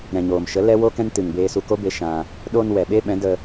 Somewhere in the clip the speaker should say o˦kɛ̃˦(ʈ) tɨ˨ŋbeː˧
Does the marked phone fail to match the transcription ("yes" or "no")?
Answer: yes